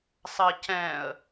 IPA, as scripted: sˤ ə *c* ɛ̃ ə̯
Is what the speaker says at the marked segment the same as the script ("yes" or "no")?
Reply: yes